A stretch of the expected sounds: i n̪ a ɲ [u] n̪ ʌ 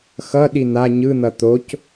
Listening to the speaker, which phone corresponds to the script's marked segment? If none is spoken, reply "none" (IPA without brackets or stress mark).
ɯ